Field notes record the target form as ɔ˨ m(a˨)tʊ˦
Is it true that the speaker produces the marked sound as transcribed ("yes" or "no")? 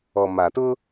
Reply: yes